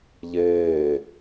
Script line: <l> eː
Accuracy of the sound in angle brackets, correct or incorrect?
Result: incorrect: ʎ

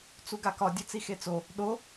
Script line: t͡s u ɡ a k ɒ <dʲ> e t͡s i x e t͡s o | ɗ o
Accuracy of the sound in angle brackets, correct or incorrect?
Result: correct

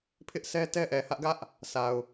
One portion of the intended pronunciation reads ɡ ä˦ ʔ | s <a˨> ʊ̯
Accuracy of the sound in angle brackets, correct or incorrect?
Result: correct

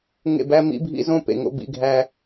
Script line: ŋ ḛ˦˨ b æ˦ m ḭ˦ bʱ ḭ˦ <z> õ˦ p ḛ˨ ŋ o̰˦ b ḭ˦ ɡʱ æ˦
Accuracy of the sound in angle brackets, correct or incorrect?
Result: correct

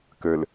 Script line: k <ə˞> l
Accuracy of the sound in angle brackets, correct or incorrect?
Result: correct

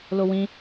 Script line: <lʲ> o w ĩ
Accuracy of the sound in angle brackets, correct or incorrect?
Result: incorrect: l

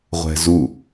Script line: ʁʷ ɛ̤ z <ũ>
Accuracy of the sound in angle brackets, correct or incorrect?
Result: incorrect: u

